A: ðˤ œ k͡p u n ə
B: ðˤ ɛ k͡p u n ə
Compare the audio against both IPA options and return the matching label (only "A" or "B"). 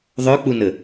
A